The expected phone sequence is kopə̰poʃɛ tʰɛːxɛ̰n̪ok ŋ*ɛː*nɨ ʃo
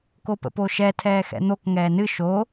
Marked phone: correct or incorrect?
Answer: correct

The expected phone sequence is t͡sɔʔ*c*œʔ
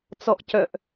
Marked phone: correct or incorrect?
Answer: correct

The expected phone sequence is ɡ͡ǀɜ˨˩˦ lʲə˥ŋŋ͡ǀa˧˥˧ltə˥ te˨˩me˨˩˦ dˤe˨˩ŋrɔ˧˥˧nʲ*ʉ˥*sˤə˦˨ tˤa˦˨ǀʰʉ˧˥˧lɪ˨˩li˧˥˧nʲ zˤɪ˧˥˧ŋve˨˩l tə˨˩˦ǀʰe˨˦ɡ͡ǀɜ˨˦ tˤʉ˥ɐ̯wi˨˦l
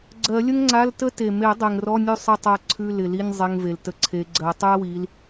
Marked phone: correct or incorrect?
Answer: incorrect: ʉ˦˨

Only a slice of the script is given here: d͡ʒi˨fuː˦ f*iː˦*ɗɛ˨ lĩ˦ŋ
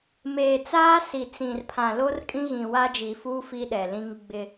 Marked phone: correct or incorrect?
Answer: incorrect: i˦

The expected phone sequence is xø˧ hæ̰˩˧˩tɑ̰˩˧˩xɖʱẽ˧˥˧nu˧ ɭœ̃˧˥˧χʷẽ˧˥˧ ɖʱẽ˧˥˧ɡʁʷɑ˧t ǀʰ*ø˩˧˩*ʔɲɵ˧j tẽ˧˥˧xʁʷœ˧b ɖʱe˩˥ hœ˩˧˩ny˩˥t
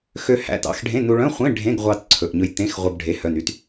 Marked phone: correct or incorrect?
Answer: incorrect: ɵ˩˧˩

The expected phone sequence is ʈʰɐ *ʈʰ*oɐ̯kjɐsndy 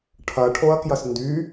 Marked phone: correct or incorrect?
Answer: correct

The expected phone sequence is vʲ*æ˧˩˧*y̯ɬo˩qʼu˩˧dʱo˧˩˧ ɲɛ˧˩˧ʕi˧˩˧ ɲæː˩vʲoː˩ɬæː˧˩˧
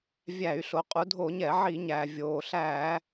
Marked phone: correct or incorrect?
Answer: correct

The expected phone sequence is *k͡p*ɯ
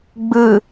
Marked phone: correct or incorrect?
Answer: incorrect: ɡ͡b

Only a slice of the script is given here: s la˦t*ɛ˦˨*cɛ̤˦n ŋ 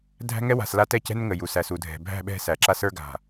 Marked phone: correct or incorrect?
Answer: correct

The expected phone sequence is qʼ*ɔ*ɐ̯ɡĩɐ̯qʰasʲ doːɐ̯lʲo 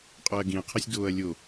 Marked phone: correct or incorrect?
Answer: correct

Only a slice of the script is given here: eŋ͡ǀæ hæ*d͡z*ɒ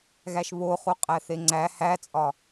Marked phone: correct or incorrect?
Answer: incorrect: t͡sʼ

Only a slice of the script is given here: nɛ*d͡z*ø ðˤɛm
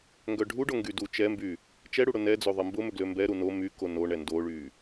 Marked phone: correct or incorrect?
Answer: correct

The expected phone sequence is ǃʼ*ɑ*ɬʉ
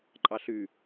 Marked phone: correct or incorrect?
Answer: correct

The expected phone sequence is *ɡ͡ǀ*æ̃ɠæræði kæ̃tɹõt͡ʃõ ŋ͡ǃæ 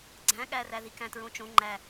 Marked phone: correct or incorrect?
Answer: correct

